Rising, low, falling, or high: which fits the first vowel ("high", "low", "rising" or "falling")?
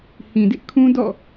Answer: low